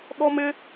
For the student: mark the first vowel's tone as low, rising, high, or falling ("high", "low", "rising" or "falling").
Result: high